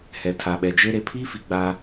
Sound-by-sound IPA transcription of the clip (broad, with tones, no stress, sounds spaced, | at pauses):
h ɛ˨ tʰ a˨ ɓ ɛ˨ d͡ʒ e˦ ɾ e˨ pʰ i˦ f i˨ ɡ͡b a˦